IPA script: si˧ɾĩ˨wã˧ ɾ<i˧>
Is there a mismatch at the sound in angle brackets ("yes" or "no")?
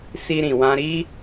no